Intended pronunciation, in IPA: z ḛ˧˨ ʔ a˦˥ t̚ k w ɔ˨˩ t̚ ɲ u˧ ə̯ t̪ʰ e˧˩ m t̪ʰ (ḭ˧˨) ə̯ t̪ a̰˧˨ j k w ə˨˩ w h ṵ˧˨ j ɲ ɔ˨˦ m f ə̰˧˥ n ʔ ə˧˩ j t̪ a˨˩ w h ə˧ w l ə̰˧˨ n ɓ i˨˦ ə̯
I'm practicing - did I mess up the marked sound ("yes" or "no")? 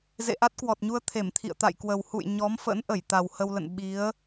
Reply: no